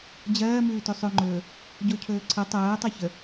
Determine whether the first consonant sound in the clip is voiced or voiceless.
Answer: voiced